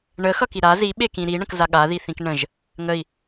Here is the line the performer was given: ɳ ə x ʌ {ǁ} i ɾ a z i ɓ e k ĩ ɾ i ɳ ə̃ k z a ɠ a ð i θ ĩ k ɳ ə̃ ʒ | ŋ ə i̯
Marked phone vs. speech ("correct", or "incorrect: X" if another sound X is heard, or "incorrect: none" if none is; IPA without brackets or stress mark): incorrect: k